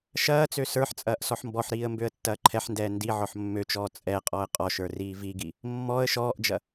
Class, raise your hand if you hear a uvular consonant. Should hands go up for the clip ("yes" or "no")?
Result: yes